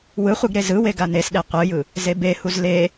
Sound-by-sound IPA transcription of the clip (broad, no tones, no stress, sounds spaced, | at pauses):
w ɯ χʷ ɯ ɡ ɾ e z ɯ w e ɡ a n e s ɗ e qʷ ɯ j ɯ | z e b e h u z l e